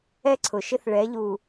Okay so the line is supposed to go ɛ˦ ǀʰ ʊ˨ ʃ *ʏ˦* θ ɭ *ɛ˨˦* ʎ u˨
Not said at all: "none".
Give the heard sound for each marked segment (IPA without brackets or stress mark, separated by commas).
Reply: ɪ˦, ɛ˨˦